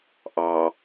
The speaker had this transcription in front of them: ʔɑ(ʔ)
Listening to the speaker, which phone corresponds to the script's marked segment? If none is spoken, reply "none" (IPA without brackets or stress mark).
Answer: none